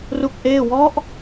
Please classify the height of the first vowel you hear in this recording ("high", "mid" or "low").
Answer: high